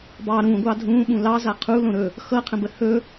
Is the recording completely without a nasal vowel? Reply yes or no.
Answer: no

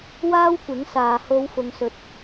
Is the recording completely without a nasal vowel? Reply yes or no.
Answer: yes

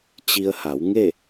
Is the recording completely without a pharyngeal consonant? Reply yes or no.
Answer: yes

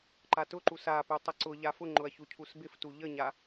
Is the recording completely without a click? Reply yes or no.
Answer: no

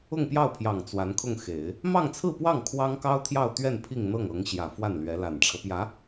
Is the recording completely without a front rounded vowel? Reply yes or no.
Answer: yes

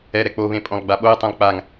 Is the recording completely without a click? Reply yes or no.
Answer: yes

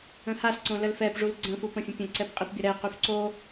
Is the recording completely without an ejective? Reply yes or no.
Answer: no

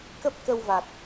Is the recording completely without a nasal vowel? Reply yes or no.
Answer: yes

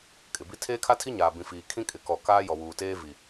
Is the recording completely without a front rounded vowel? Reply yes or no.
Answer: yes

